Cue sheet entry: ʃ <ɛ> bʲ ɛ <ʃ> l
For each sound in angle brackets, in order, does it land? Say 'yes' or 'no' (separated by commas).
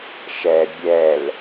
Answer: yes, no